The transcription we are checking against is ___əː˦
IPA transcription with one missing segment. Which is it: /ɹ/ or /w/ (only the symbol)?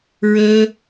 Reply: ɹ